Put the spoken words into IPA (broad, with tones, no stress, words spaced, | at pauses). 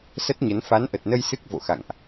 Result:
sə˦˥t̚ɲə˨˦n fa˨˦nʔə˨˩t̚nə˧j sɨ˦˥k̚ vo̰˧˨xa̰˧˨ŋʔ